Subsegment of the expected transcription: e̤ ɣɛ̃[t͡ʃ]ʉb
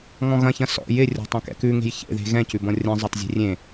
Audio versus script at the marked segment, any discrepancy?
yes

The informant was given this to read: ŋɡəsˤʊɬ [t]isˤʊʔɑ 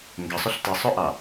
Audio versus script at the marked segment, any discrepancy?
no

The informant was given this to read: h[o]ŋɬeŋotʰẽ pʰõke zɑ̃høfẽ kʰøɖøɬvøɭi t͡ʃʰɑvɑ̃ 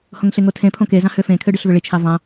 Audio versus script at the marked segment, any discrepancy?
yes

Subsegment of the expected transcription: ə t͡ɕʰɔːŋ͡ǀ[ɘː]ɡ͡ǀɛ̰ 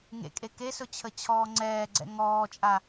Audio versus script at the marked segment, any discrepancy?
yes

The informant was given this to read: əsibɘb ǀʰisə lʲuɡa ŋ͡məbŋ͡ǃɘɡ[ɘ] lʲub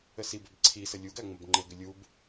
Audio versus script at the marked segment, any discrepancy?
no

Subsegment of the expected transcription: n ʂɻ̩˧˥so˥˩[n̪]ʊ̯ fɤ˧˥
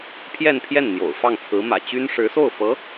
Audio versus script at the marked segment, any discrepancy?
yes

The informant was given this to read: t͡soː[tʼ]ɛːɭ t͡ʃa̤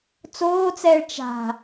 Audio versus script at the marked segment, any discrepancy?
yes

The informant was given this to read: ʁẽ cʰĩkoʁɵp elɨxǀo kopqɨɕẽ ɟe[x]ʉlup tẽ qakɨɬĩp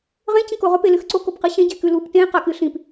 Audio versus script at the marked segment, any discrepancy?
yes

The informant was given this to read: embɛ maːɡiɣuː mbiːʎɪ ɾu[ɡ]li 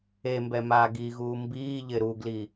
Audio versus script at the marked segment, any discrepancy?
no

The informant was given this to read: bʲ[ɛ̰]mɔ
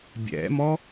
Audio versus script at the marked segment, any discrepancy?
no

